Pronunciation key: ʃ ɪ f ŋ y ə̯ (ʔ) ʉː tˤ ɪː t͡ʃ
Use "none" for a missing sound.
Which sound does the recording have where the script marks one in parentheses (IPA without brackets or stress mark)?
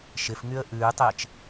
ʔ